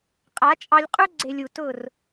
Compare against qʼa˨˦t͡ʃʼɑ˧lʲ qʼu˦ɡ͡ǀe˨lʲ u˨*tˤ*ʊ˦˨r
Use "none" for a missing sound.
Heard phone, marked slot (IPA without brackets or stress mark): t